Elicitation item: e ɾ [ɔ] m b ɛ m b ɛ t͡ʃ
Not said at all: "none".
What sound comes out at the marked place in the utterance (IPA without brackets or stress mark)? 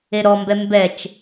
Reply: ɔ